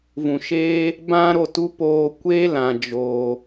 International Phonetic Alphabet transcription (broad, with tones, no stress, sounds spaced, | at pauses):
v ũ˨ ʃ eː˦ | b ã˦ ɾ o˦˨ t u˦ p oː˧ kʷ e˦ l ã˧ d͡ʒ oː˧